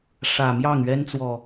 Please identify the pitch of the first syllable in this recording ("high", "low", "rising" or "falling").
low